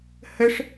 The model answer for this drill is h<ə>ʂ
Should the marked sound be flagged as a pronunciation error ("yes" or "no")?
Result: no